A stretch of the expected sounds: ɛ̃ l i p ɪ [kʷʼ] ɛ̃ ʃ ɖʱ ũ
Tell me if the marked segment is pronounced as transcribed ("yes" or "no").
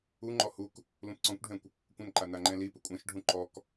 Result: yes